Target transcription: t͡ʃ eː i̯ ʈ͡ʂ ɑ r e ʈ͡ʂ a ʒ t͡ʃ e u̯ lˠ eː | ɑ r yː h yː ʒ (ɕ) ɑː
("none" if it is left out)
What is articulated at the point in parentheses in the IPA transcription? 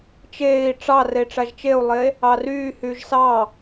s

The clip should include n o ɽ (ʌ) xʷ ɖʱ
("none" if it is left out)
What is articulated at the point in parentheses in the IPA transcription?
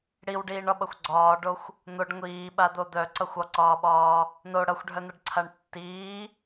ʌ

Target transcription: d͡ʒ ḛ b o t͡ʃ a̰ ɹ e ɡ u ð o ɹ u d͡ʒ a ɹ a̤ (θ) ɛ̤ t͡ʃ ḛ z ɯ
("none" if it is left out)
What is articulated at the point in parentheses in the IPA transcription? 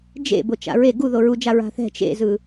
θ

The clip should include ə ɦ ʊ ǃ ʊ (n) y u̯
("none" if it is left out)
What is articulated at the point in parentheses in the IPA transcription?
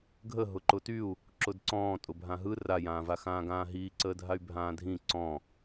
t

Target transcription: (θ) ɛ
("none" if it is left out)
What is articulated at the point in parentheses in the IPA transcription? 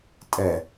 tʼ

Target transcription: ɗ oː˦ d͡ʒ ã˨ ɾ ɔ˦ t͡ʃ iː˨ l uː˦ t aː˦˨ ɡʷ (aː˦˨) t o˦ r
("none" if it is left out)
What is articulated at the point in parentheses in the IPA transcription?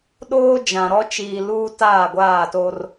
aː˦˨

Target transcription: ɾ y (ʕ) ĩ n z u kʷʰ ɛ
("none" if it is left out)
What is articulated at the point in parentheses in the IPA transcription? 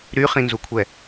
χ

